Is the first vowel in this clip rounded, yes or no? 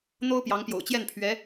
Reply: yes